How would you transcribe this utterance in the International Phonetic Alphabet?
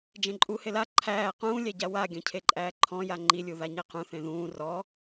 d͡ʒ ẽ ǃʼ u h e l a ǃʰ æː q ũː lʲ æ ɟ a w a ɡʲ ɔ̃ cʰ e ǃʼ æː ǃʰ ɔ̃ j a ŋ͡ǃ i lʲ u ð a ɲ e q ũ θ ẽ ð ũː r ɔ

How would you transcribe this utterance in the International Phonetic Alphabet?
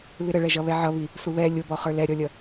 β ɪ ɾ ə ɭ ɛ ʒ ʌ β ɛ ʕ ʌ β i | s u β ɛ lʲ ʊ b ɔ χ ə˞ l ɛ ɾʲ ɔ lʲ ʌ

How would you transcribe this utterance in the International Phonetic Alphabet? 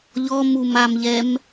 ʎ ɔ m u m a m ʎ ɛ m

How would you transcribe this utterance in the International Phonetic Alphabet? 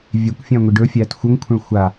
vʲ e kʷ fʲ æ̃ ŋʷ i ɖ ɵ fʲ æː t xʷ ə ŋ kʷʰ ə̃ ɭ xʷ a

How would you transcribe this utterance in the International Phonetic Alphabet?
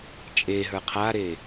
t͡ʃʼ e ɦ ə˞ qʰ a ɾ e

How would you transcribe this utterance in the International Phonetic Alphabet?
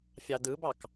fʲ ɑ d ɯ b ɑ k

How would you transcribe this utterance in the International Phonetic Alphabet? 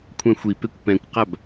kʷʰ ɛ̃ xʷ i p e kʷ p ɛ̃ kʷ q a b

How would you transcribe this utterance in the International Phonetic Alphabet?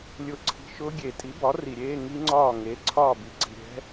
lʲ ʊ˥˩ ǀʰ i̤˧˥˧ ʃ ʊː˦˥ ɡʲ e˨˩˦ tʼ i˩˥ b ɒ˩˥ r i˩ ɾʲ eː˧˥˧ ŋ i˦˥ ŋ͡ǀ ɒː˥˩ ŋ e˩˥ ǀʰ ɒː˥˩ b i˩ ǀ i̤˩ ɾʲ ɛ̤˦˥

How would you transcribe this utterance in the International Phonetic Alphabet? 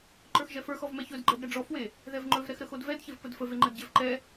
ǃ ə˞ x ʒ ɛ f ə˞ x ɔ v m ɛ ç ɵ d ɡ͡ǃ ɛ d ɾ ɛ ɖ͡ʐ ɔ f w e | ð ɛ v ŋ͡ǃ ɵ v ɾ ɛ x ɾ ə x o d v ɛ d ç e v p ə d f ə v e ŋ͡ǃ ə d ɟ e v ǃ ɛ

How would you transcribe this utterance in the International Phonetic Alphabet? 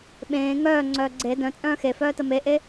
ɓ ẽː ŋ œː ŋ͡ǀ œː ɡ͡ǀ e d œ̃ t͡sʼ œ̃ː x e f œː t ə m e ʔ e

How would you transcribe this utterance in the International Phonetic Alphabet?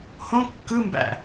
h õ kː ɯ m b æ̰

